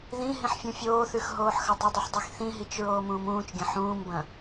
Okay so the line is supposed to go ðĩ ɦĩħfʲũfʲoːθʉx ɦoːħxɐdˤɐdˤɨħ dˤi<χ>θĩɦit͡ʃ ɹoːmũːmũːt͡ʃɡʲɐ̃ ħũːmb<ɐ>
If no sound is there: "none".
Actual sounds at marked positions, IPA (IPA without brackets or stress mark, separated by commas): x, ɐ̃